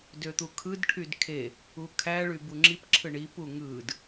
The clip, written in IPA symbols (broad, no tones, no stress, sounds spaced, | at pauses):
d ø t̪ u kʰ ɯ d ʈʰ y d kʰ e | u kʰ æ ɭ y b u ŋ͡ǁ i p ǁʰ ɯ ɳ i p u ŋ ɯ d